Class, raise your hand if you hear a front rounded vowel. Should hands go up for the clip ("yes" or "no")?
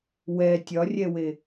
no